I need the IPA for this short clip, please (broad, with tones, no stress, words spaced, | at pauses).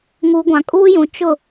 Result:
ŋuː˨ ɡʷã˨kʼuː˦jũ˨ t͡ʃʊ˦˨